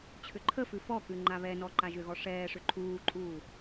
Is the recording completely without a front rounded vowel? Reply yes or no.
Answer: no